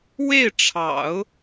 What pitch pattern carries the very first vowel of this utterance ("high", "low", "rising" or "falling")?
falling